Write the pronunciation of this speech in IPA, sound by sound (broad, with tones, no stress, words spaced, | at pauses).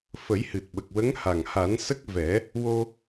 fə˨˩˦jhɨ˨˩t̚ɓə˨˩k̚ wə˧˥ŋha˨˩ŋha˨˩˦nsə˦˥k̚ vɛ˨˩˦ | wo˧